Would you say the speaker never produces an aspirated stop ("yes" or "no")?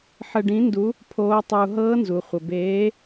no